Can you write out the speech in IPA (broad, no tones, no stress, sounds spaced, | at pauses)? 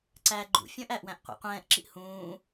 ǀ æ ɡ͡ǃ ṵ fʲ ə̃ː ʔ æ ʔ w æ̃ ʔ qʷ ɛ̰ qʷ ɛ̃ː ʔ ǁ i ʔ h ũː